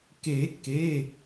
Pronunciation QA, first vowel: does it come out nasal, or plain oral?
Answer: oral